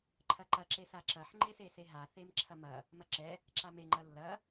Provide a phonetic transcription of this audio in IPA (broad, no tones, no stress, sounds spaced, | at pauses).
ǃʰ ɐ ǃ ɐ ǁ e s a ǁ ɐ ħ ŋ͡ǃ e s e s e ɦ a θ e m ǁʰ ɐ m ɐ | m ɐ ǁ ɛ | ǁ a m e ŋ͡ǃ ɐ lː ɐ